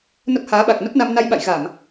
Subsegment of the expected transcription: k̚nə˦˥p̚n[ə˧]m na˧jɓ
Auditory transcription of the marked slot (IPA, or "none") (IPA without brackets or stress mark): a˧